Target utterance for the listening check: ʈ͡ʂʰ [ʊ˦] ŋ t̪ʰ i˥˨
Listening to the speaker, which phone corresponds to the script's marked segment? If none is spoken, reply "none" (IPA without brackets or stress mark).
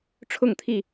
ʊ˥˨